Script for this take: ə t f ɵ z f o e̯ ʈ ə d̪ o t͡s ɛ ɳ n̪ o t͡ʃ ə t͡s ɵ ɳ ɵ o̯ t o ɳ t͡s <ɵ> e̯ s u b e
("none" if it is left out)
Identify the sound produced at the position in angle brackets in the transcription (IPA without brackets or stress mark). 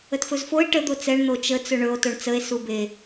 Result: ə